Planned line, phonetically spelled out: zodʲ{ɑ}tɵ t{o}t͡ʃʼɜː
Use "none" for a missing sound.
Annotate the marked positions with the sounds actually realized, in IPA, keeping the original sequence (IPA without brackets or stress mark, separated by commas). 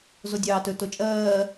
ɑː, o